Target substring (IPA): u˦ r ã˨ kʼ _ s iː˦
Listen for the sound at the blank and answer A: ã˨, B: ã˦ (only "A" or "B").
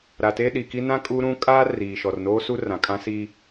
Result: B